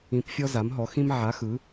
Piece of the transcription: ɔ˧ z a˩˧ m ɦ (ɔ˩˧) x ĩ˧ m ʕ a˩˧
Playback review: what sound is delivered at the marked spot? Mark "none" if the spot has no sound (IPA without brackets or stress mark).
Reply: ɔ˩˧